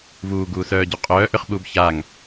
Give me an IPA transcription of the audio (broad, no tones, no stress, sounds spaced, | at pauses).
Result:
v uː ɡ uː s œː ɟ u qʼ œː ʔ ʏ χ ɓ uː b ç aː ŋ